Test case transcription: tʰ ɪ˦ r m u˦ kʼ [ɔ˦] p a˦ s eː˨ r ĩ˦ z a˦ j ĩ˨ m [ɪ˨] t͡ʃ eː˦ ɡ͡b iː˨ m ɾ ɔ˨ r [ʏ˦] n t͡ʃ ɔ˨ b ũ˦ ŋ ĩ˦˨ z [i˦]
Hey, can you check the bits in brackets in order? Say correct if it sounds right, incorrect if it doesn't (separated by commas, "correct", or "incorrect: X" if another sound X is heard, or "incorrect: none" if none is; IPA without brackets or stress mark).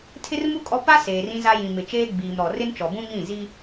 correct, correct, incorrect: ɪ˦, correct